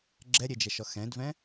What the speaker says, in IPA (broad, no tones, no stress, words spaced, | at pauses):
ɡ͡ǁɛɾʲed͡ʒɛʃɔ xɛ̃dvɛ̃